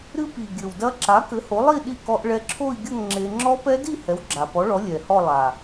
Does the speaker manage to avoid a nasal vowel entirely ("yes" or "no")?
yes